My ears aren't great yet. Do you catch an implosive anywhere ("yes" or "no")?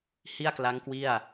no